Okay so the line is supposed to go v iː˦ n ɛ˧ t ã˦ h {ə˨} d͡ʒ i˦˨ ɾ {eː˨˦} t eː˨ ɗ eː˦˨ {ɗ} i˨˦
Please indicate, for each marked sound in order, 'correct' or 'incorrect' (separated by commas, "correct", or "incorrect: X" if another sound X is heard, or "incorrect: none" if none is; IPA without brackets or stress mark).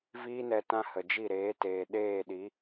correct, correct, correct